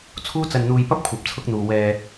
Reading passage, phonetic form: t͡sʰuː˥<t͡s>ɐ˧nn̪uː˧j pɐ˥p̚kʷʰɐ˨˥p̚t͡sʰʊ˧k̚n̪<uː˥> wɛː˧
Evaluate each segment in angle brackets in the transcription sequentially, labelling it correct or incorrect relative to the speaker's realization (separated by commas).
correct, incorrect